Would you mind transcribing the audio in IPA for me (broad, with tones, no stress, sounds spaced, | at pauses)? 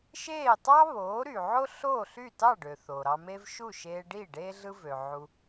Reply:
ʃ eː˥˩ tˤ ɑ˥ β oː˩˥ ɾ y˩ ʕ o˥ ɬ oː˥˩ ɬ y˥˩ t ɑ˥˩ ɖ ø˩ θ o˩ ɾ ɑ˧ m e˥ v ʃ u˥˩ ʃ eː˧ ɖ i˥˩ ɖ eː˥ ɮ ɯ˥ v ø˩ ʕ u˧